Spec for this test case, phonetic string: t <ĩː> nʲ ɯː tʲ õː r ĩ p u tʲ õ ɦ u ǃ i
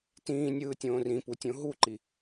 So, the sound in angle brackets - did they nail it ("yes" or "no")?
yes